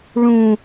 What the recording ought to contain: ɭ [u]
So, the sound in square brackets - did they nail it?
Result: no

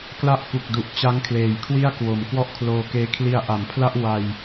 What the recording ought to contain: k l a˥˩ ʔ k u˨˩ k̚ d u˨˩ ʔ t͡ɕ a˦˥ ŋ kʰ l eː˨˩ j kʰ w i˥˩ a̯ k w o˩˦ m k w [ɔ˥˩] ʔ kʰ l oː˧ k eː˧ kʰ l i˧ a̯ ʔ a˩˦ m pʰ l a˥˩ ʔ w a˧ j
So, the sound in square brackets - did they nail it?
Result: yes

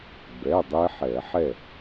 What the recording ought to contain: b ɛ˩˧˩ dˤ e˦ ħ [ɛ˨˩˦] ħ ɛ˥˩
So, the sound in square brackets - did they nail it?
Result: yes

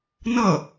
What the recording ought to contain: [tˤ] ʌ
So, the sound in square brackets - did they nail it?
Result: no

